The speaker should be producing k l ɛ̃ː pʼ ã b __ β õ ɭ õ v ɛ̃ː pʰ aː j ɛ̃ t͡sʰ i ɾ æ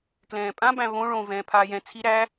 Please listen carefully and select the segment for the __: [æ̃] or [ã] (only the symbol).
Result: æ̃